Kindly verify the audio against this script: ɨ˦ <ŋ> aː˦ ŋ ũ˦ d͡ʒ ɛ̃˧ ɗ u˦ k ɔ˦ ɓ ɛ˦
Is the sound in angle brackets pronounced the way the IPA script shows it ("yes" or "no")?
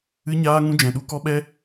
no